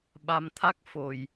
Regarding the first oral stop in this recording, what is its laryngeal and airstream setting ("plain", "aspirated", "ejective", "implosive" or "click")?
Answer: implosive